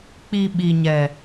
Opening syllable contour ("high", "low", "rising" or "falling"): low